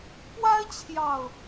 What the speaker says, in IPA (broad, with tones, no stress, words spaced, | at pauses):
pwa˦ɪ̯t͡ɕʰjɑ˨˩ʊ̯